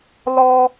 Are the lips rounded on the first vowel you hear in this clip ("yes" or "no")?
yes